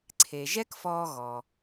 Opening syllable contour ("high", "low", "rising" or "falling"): low